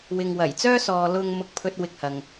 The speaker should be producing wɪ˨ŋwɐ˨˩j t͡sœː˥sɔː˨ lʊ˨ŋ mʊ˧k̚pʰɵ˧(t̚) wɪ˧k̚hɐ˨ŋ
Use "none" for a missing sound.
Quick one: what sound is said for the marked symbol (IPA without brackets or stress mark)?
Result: t̚